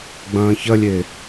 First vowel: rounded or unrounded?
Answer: unrounded